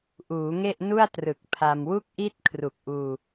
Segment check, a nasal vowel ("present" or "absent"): absent